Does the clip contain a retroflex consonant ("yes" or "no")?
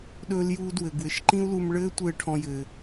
yes